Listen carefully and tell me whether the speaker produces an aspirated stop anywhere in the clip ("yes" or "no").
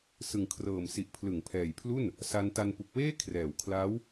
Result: yes